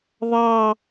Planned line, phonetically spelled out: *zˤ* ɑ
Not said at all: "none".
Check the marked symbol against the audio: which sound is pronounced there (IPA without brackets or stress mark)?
ðˤ